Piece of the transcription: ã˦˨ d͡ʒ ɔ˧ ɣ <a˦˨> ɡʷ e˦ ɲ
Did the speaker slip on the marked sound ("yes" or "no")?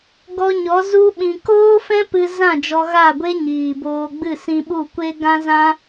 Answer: no